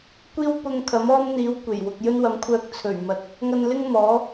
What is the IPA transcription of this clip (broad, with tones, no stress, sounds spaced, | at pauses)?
kʷ iː˥ w p ʊ˧ ŋ kʰ ɐ˨˥ m ɔː˥ m n̪ iː˨˥ w kʷ e˨˩ j w ʊ˨ k̚ j ɵ˥ n w ɐ˨˥ m kʷʰ œː˧ k̚ t͡sʰ ɵ˨˩ ɥ m ɐ˨˥ t̚ | ŋ ɐ˧ n l ɪ˥ ŋ m ɔː˨˥